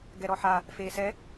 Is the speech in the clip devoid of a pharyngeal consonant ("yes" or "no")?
no